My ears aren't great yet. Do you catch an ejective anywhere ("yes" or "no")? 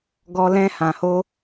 no